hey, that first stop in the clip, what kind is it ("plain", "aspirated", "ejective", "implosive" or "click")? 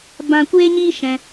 plain